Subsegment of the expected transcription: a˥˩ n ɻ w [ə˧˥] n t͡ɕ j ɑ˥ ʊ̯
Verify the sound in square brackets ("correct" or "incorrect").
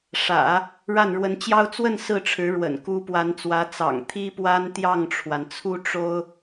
correct